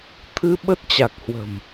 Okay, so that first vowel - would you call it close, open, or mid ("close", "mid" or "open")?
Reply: close